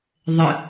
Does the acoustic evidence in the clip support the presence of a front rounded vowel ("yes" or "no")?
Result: no